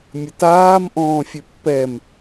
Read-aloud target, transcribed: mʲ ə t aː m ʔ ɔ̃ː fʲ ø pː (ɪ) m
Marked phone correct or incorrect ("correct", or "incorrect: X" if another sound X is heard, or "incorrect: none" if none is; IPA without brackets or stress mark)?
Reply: incorrect: ɛ